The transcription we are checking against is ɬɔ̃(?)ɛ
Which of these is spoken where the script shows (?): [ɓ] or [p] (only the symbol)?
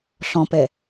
p